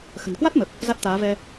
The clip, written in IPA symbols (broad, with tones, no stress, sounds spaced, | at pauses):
x ə̤˨˩ n k w a˦˥ t̚ m ə˨˩ p̚ | z a˦˥ t̚ t̪ aː˨˦ v ɛ˧